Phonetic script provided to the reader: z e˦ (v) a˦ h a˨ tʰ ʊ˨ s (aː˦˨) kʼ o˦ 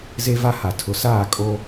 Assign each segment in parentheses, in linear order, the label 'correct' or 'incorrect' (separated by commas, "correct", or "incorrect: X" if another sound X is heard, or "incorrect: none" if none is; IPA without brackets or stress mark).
correct, correct